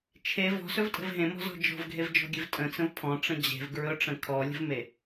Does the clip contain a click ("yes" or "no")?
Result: no